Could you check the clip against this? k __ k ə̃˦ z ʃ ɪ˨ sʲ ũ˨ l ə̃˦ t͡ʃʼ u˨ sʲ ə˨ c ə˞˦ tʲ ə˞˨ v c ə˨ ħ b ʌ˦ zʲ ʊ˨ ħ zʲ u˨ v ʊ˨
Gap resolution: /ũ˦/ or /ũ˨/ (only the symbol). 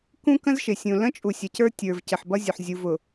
ũ˦